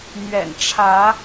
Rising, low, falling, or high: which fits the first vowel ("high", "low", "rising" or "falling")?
low